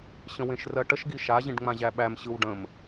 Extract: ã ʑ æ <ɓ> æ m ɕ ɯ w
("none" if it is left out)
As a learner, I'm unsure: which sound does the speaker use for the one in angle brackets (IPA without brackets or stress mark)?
ɓ